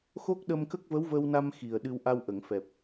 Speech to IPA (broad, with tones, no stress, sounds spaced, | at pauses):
x o˦˥ k̚ ɗ ə˧ m k ə˦˥ k̚ v ə˧˥ w v ə˧ w n a˧ m x i˨˩ ə̯ ɗ ɨ˧ w ʔ a˧ w ʔ ə˨˩˨ ŋ f ɛ˨˩ p̚